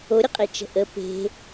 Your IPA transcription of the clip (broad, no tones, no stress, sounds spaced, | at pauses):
o ɾʲ ə qʼ e t͡ʃ ə̤ ʔ ə p e̤